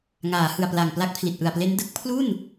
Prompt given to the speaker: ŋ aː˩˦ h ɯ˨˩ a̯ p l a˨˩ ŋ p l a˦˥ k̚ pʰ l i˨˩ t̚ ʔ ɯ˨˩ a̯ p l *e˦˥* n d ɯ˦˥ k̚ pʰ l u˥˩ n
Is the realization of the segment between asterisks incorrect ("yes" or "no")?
no